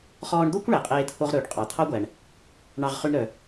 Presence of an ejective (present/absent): present